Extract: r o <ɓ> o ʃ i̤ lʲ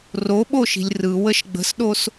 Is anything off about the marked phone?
no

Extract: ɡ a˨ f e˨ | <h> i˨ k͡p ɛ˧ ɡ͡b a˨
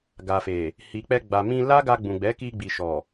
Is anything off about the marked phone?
no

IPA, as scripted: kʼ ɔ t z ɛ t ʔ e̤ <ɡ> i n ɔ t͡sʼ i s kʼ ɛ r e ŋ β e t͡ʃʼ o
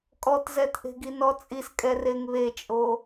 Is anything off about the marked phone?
no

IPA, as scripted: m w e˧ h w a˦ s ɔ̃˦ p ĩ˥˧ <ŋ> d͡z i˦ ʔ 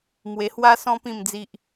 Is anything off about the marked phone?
yes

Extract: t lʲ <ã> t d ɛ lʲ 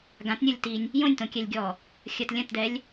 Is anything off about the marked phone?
yes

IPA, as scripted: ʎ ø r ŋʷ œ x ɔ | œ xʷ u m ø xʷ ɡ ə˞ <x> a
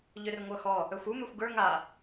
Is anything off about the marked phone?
yes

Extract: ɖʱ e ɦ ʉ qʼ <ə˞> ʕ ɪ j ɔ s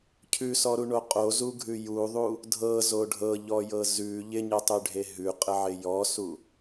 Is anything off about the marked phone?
yes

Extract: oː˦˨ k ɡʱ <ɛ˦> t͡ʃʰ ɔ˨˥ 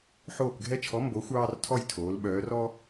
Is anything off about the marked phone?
no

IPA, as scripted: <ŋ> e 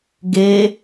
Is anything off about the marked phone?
yes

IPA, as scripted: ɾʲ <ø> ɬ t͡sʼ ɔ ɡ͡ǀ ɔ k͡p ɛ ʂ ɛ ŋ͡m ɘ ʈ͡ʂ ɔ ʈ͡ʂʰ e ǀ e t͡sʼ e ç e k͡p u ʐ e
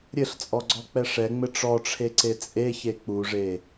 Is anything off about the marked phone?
yes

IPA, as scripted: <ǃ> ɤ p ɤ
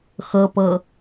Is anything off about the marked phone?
yes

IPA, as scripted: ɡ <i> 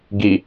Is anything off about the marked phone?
no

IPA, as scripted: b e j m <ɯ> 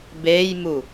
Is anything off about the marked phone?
yes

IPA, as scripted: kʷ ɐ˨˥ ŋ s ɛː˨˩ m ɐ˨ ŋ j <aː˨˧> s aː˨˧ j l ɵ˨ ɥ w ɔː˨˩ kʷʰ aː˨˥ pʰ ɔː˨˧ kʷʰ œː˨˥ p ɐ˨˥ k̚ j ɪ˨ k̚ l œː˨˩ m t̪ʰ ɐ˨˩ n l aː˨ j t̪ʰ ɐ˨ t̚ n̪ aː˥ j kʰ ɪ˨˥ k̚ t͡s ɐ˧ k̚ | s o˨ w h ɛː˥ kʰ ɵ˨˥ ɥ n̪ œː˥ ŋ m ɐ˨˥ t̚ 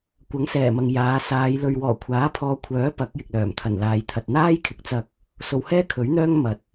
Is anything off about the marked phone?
no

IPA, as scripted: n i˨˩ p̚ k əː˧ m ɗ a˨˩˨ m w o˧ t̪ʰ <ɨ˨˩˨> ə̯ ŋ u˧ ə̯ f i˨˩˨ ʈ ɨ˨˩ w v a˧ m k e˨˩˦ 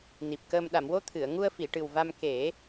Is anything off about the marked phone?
no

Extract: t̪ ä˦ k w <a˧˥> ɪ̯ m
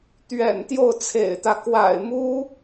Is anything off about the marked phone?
yes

